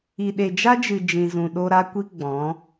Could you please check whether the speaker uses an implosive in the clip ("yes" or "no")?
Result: yes